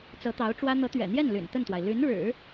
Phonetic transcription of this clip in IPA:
t͡s ɤ˧˥ t̪ ɑ˧˥ ʊ̯ ʈ͡ʂ w ä˥ n̪ ɤ˧˥ t̪ ɥ ɛ̰˨˩ n̪ j ɛ˥˩ n l y̰˨˩ n t̪ ə˥˩ n t̪ w a˩ ɪ̯ l y˧˥ n ɻ ɻ̩˨˩˦

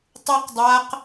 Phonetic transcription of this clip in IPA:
tˤ u q dˤ a q

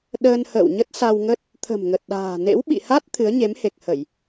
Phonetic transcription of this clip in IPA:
ɗ əː˧ n h ə̰ː˧˨ w ɲ ə˦˥ t̚ s a˧ w ŋ ə˦˥ t̚ | t̪ʰ ə̤˨˩ m ŋ ə˨˩ t̚ ɗ a̤ː˨˩ n ḛ˧˥ w ɓ ḭ˧˨ h a˦˥ t̚ t̪ʰ ɨ˨˦ ə̯ ɲ e˨˦ m h e˨˩ k̚ h ə˧˩˨ j

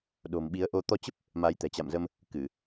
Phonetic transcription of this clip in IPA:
ɗ o̤˨˩ m ɓ i˨˦ ə̯ ʔ o˧ t̪ ɔ˧ t͡ɕ ə˦˥ p̚ | m a˨˦ j t̪ ɛ̤˨˩ t͡ɕ a̰˧˨ m z ə˧ m | k ɨ˧˩˨

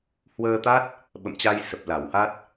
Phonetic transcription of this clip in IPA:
h w əː˧ t̪ a˦˥ t̚ | ɓ ə̰˧˨ m t͡ɕ a˧ j s ə˨˩ p̚ l a˧˩ w h a˦˥ t̚

